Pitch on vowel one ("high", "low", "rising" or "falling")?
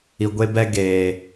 low